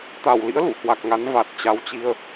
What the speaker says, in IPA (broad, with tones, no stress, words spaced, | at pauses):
t̪a˧˩wlḭ˧˥ə̯ lṵ˧˨hwa˨˩k̚ŋa˨˦n va˨˩t̚t͡ɕa˨˦wt͡ɕi˧ə̯